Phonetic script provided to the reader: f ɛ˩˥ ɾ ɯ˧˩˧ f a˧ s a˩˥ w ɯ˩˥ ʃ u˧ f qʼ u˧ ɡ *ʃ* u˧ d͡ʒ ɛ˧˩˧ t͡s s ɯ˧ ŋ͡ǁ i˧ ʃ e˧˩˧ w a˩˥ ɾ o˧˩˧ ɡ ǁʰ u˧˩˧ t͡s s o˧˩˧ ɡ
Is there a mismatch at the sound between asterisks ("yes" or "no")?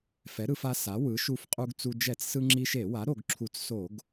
yes